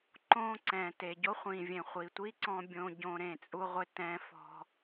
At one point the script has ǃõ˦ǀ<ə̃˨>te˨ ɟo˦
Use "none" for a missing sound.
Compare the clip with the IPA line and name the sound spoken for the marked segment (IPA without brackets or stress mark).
ɛ̃˨